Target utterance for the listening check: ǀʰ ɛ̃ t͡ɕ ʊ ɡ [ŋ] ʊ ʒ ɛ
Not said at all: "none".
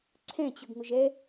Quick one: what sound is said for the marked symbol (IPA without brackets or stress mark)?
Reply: ŋ